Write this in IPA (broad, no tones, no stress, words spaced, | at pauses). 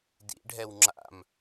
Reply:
dḭɖʱɛw ŋ͡ǁa̰m